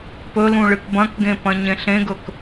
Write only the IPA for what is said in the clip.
p ɵ l ũ ɭ ɨ k b ɐ̃ k ɡ ẽ p ɐ̃ ɲ ẽ ɬ ẽ ɡ ɵ k

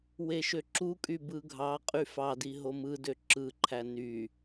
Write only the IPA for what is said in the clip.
w e ʃ ø ǁ u kʼ y b ɯ ɡʱ ɑ qʼ y f ɑ d i ɦ o m ɯ d ø ǁ ɯ ǃʰ æ n y

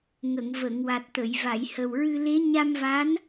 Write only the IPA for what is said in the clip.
ŋ ə˨˩˨ ŋ v ə˨˩˨ ŋ w a˨˩ t̚ t̪ ə˨˩˨ j v a˨˩˨ j h ə˨˩ w ɹ ɨ˧ l e˧˥ ɲ a˧ m v a˧˥ n

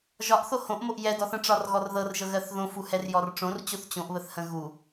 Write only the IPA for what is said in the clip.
ʒ ɒ ʔ θ o h õ ʔ m o ʔ j ɛ d ɔ θ ə̃ ʈ͡ʂ ɒ r ɣ ɔ r ð ɤ r ʒ ɤ ɣ ɜ θ ð õ f u h ɛ r j ɔ r ʈ͡ʂ õ r t͡ɕ o θ t͡ɕ õ ʔ β ə θ h ə̃ ɣ u

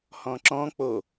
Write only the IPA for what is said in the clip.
h ɔ̃ ǁ ɔ̃ k͡p o

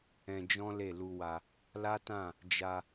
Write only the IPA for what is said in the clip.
ɛ̃˧ d͡ʒ ɔ̃˦ l e˦˨ l u˧ w a˧ | l a˦ t ã˦˨ | d͡ʒ a˧

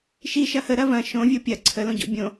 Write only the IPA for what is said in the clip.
ʃ i ʃ ɐ h ə ɾ ɐ v ɐ̃ ʃ õ vʲ o pʲ ɐ ǀʰ ə l õ ɟ o̰ bʲ õ

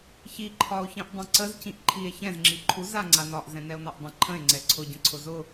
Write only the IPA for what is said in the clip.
ç i ǃʰ ɒ o̯ ç ĩ ʔ dˤ ɛ̃ ǀ ə z c ĩ ʔ ǃʰ i e̯ ç ɛ̃ z ŋ͡ǁ i ǃʰ u z a ŋ͡ǀ a n ɒ ʔ z ɛ̃ n ɛ o̯ n ɒ ʔ dˤ ə̃ ǃʰ ə̃ e̯ ŋ͡ǀ ɛ ǀʰ ʊ ɟ ə̃ ǀʰ ʊ z ʊ

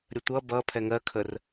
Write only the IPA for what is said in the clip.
ɾʲ ə tʷ ʌ b ʌ pʰ ɛ ŋ ɜ kʰ ə r

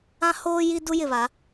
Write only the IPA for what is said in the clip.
ã˦ h oː˦ j i˦ d u˦ j ɪ˨ β a˨˦

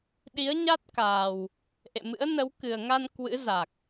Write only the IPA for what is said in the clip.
ɗ i˨˦ ə̯ ɲ a˦˥ t̚ k aː˨˩ w | ʔ ḛ˧˨ m ɨ̰˧˥ ə̯ n ə˨˦ w k ɨ˨˩ ə̯ ŋ a˧ n k w ɨ̰˧˥ z a˨˩ k̚

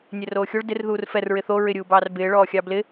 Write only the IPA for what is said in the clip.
nʲ ɛ r oː xʲ o ɭ d ɪ r ð uː r f ɛ r ɹ ɪ θ o ɹ ɪ ɾʲ uː b ɑː r b ɪː ɭ ɔː xʲ ɑ b l ɪ

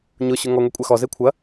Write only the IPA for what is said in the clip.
ɲ ʊ ɕ ʊ ŋ ɔ ŋʷ e kʷʼ a x ɔ z e kʷʰ ɐ

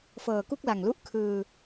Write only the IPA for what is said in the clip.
f ɤː˨˩ k u˥˩ k̚ l a˨˩ ŋ l u˦˥ ʔ kʰ ɯː˧

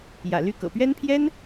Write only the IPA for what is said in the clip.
j ä̰˨˩ l y˥˩ k ɤ̰˨˩ p ɥ ɛ˥ n pʰ j ɛ˥ n

